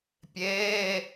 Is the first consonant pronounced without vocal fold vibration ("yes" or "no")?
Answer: yes